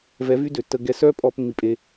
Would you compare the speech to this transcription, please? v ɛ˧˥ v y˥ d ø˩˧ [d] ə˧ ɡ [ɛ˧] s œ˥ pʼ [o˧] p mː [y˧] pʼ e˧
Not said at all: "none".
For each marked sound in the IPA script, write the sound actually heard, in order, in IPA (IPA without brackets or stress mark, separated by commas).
tː, ɛ˧˥, ɔ˧, i˧